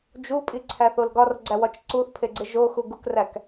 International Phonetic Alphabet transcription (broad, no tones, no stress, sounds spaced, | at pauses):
d͡ʒ u pʼ i ǀʰ æ θ o l ɡ ɒ r ɡ͡ǀ æ w ɒ t͡ʃ ǀ u θ pʰ e ɡ͡ǀ e ʒ o x u ɡ u k r æ k